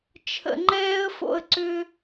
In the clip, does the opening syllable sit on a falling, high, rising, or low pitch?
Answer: low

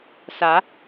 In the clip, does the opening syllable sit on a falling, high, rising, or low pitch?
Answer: rising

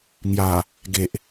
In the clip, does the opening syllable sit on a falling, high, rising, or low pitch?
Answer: low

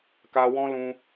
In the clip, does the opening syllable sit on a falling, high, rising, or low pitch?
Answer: high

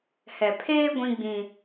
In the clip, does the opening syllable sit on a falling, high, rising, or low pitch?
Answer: low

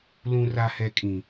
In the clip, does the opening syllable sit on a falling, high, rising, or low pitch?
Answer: low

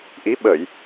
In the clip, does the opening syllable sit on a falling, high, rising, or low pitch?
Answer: rising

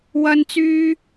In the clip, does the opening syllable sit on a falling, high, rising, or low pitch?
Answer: high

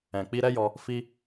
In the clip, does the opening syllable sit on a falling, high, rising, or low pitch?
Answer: low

